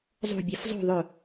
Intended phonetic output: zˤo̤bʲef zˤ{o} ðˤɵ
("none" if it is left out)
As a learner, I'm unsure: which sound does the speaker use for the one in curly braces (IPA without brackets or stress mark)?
o̤